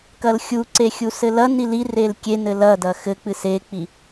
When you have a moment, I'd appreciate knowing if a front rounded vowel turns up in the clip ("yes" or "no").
no